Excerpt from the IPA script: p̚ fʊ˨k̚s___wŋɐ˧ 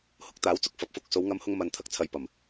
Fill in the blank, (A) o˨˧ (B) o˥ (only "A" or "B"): A